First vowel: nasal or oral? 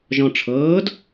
nasal